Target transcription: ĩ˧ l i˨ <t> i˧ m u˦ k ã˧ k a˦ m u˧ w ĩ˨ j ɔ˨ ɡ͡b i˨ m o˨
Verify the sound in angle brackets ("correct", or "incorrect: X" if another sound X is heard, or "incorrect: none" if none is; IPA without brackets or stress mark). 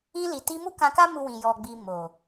correct